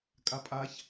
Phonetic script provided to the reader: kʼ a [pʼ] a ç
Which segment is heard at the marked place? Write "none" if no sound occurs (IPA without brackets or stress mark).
pʼ